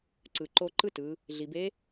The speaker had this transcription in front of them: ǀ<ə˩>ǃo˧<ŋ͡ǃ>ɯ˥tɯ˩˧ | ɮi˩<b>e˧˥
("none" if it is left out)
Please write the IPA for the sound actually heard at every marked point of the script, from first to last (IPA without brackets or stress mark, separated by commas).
ɯ˩, ǃ, b